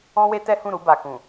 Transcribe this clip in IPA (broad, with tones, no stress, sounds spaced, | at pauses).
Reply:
ɔ̃˦ w e˦ t ɛ˦ h ũ˦˨ ɾ u˧ b a˨ k ũ˨